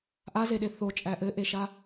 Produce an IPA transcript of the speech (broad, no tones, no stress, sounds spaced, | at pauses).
ʔ a z e ɗ e θ o t͡ʃʼ æ ʔ ɘ ʔ e ʃ a